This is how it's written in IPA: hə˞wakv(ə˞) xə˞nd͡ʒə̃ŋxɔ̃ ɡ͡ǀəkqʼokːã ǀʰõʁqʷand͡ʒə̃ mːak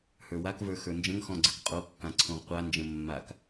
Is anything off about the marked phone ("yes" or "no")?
no